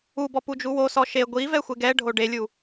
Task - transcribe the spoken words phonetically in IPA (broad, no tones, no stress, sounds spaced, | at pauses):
u b ɔ p u d͡ʒ u w o s ɔ ʃ e ɡʷ i v ɛ xʷ e ɡ ɛ ɖʱ o ɖ e lʲ u